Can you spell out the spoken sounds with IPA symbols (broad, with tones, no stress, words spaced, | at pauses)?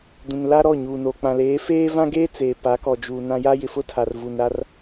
dũ˨n la˦ɾɔ˦˨ ɲuː˨no˨ k͡pã˨leː˨˦feː˦ vã˦ɡeː˦ t͡seː˨pa˨˦kɔ˨d͡ʒuː˨ nã˦ ja˦jɪ˨ fʊ˦ tʰa˨rvu˨nɾa˦r